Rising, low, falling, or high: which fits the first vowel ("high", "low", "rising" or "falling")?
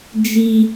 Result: high